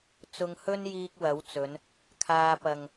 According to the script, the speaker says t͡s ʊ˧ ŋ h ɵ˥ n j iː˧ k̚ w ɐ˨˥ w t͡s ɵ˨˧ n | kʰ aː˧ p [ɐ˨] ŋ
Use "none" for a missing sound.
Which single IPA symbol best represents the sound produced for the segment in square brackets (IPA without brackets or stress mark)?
ɐ˨